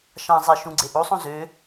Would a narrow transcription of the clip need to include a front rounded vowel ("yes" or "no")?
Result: yes